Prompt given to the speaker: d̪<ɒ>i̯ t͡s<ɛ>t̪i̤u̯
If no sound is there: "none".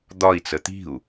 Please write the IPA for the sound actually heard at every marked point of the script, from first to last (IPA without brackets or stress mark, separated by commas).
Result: ɒ, ə